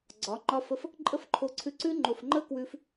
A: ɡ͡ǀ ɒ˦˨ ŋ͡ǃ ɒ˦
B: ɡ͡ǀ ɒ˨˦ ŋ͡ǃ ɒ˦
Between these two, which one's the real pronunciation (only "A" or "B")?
B